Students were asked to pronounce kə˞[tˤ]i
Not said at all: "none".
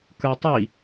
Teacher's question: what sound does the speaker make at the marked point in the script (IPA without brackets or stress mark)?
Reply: tˤ